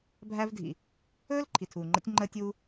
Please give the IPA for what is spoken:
bʱ æ˥ v dʱ ḭ˩ | ɵː˥ l ǃʰ i˩ tʰ uː˩ ŋ͡ǃ ə̰˧ tʲ ŋ͡ǃ əː˧ tʲ uː˧

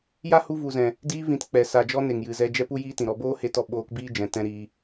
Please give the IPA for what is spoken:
j a˦ h u˧ v u˨ z ɛ̃˨ | d iː˧ v ĩ˨ t k͡p ɛ˨ s a˨ d͡ʒ ɔ˧ n e˨ ŋ j ɨ˨ z ɛ˧ d͡ʒ ɛ˦ p u˦ j iː˦ t ĩ˨ ɾ ɔ˧ b oː˦ h e˧ t ɔ˧ ɓ oː˧ k b iː˦ d͡ʒ ɛ̃˨ t ɛ̃˦ ɾ iː˧

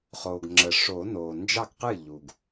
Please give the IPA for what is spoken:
χ o˩ ɡ ŋ͡ǁ ə˩ ʂ o˨˩˦ n oː˩ n d͡ʒ ɑ˥˩ ɡ q ɨ˥˩ ʎ u˩ ɡ

